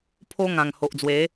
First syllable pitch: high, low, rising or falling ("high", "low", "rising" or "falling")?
high